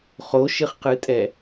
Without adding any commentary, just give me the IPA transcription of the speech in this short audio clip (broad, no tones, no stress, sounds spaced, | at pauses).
χ o ʃ ɨ χ q ɨ tʼ ɛ